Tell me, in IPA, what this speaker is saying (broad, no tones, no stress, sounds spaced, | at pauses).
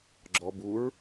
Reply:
ɡ͡ǁ ɔ b u ɹ